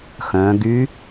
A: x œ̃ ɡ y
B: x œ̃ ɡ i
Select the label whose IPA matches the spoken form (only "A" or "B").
A